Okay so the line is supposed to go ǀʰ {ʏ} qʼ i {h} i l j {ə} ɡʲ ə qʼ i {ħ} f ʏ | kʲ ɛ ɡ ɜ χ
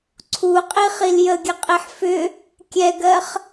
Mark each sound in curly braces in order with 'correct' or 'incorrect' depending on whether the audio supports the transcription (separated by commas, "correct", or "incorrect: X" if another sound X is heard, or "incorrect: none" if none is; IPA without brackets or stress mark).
incorrect: u, incorrect: χ, correct, correct